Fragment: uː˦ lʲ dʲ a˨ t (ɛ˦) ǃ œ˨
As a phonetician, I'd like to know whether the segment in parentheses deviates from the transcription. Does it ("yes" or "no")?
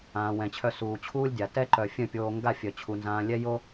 no